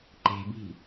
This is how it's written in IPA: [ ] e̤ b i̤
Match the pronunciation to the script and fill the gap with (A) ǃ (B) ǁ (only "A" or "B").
A